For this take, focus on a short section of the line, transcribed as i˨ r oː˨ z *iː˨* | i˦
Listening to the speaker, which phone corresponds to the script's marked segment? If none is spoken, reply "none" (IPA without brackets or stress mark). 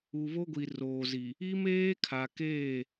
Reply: i˨